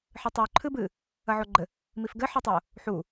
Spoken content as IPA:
ħ ɨ tˤ u ǃʰ ɨ b ɨ | ɐ ʕ o ɡ͡ǃ ɘ | m i f ɡ ɘ ħ ɔ tˤ o | ħ u

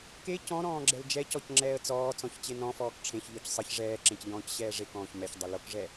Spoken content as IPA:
k e c ɔ̃ ɾ ɔ̃ː ɡ͡ǁ ɛ l d͡ʒ ɛ c ɔ c ŋ͡ǁ ɛː ə̯ t͡s ɔː t͡s ɔ̃ ç t͡ɕ e n ɔ̃ f ɔː k ʈ͡ʂʰ ẽ ç ʎ ɔ c sˤ ɘ ç ʐ ɛː ǁ ẽ c ʎ ɔ̃ː c ɕ ɛː ʐ e k ɔ̃ː ç m ɛ ç dˤ ɘ l o k ʐ ɛ

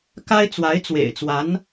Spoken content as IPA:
k a˥ ɪ̯ t͡s w a˧˥ ɪ̯ t͡s w ḛ˨˩ ɪ̯ t͡s w a˧˥ n

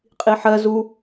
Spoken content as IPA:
qʼ i ħ ɜ z u

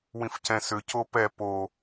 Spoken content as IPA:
w ĩ f c ɛ̃ s ʏ c o p ɛ p o

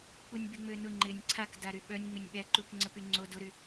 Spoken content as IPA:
k͡p u nʲ b y ŋ͡m ø n ʊ ŋ͡ǃ ɪ nʲ ǀʰ a k d a ɾ y ɓ œ nʲ ŋ͡m ɪ nʲ ɓ ɛ ǃ u k ŋ͡ǀ ə p y ŋ͡ǀ o d ʊ ɾ y

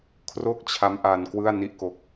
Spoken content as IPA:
kʰ r o˥˩ k̚ t͡ɕʰ a˦˥ m ʔ a˧ n k w ɯ˥˩ a̯ n i˥˩ ʔ k o˦˥ k̚

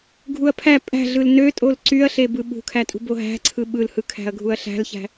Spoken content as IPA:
ɡʱ u ɐ̯ pʰ æ pʼ æ̤ ɮ ɯ l n ø tʼ o l ǀ y ɐ̯ ɬ e b ɯ ɓ ṳ kʰ æ tʼ ṳ b o ɦ æ̤ ǀʰ ɯ ɓ ɯ l h ɯ kʰ æ̤ ɐ̯ ɡʱ u ɐ̯ ɬ æ̤ l ç æ̤

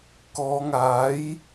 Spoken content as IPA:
k ɔː˨˧ ŋ aː˨˥ j

